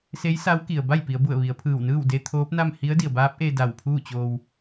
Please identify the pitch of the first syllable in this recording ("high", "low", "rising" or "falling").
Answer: rising